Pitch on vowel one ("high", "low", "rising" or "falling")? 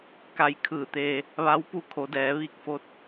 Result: rising